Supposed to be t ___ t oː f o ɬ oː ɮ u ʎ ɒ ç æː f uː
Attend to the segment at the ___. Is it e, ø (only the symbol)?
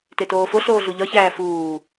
e